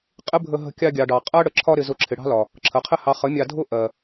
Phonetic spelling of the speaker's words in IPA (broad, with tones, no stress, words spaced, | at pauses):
qʼɪ˦ bʱə˧ɦə̤˧ kʲɑ˧ɡʲɑ˨ɖɑ˨ qʼɜ˦ɽə˨ ǁʰɒ˧ɾɪ˨ zʊ˧ǁʰɪ˨ ɽɑ̤˦lɒ˨ | ǁʰə˨qʰɪ˦ hɑ˨ χə˨˦mʲɑ˧dʱʊ˦ ʔɜ˨